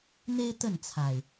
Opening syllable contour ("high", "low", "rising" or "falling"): high